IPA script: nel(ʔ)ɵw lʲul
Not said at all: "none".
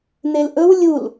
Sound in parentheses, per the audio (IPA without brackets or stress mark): ʔ